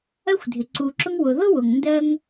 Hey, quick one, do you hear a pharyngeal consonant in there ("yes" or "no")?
no